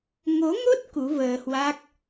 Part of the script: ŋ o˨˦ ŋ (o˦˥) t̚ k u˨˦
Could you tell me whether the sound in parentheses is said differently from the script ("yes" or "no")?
no